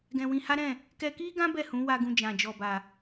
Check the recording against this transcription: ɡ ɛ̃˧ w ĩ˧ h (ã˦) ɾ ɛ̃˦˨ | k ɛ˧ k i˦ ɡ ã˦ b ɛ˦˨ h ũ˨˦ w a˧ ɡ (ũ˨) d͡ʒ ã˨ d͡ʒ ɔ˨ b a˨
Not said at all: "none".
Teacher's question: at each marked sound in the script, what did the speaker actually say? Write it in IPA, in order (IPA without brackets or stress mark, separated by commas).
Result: a˦, ũ˧